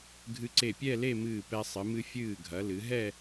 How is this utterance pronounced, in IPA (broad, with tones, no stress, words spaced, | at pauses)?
ɡʱɨ˧ǀe˧˩pʲɛ˥˧ le˥˧mɨː˧˩ pɛ˧ sˤɨ˩˧ mɨ˧fʲɨː˧˩ɡʱɐ˩˧lɨ˩˧ ɦɛ˥˧